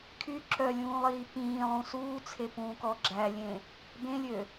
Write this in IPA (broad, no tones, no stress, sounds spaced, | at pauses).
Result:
kʰ y ǁ œ lʲ ũː lˠ iː p ĩː lˠ ũ s uː t͡sʰ e p ũː k ɔ ɡ͡ǁ æ lʲ ẽ | b ẽ lʲ ø